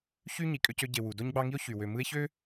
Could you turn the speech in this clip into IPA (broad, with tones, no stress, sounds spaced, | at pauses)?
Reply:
ç y˥ ɲ i˩ kʼ ø˥ c ø˥ ɟ e˨ w u˩ d o˥ ɲ ɡ͡b ɑ˦ ŋ i˥ o̯ ç y˩ w ø˨ m ɯ˦ e̯ ç ø˥